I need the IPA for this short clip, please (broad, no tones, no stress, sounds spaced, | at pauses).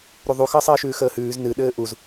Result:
ɾ u ðˤ u x əː sˤ ɘː ʃ ʉː x əː h ʉː z n ɨ ɗ ɘː ʔ u z